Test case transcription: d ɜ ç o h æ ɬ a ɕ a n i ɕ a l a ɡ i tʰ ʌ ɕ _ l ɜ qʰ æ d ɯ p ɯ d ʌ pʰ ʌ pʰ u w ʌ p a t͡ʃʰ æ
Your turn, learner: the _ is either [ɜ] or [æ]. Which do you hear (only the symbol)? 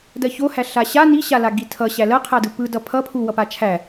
æ